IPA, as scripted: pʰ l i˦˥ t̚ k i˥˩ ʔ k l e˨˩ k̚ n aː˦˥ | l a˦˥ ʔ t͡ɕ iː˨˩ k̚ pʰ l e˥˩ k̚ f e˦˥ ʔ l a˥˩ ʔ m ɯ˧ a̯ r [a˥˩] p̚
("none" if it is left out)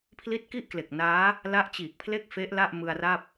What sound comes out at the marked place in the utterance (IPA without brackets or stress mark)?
a˥˩